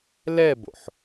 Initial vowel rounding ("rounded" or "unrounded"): unrounded